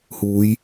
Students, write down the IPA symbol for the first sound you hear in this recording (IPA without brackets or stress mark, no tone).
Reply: h